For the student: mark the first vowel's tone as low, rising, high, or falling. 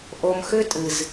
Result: low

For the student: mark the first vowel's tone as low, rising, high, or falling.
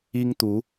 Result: high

